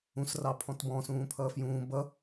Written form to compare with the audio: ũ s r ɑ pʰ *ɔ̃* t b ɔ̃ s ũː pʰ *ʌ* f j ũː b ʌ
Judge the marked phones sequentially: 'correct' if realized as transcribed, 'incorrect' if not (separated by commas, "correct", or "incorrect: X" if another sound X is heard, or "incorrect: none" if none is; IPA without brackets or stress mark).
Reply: correct, incorrect: ʌː